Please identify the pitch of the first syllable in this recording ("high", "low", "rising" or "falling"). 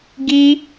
high